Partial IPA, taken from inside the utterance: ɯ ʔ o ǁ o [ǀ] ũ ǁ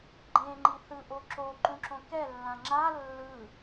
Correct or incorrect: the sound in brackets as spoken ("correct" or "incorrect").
incorrect